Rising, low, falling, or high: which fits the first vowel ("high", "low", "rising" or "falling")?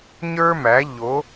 high